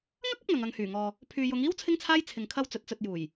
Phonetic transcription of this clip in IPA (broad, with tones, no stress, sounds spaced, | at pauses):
ŋ ɐ˥ k̚ ɐ˥ p̚ ŋ ɐ˨ ŋ ɐ˨ ŋ h yː˨˩ ŋ ɔː˨ | pʰ yː˨ j ʊ˨˧ ŋ iː˥ w t͡sʰ ɪ˥ ŋ t͡sʰ aː˥ j t͡sʰ ɪ˨ ŋ kʰ ɐ˧ w t͡s ɵ˨˥ t̚ t͡s ɵ˧ t̚ j uː˨˩ j